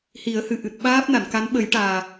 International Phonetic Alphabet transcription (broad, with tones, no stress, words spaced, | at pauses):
hi˨˩˦ə̯hɨ˨˩ ʔɨ˨˩t̚ɓaː˦˥p̚ na˨˩˨nka˧˥n ɓə˨˩˦jʈaː˨˩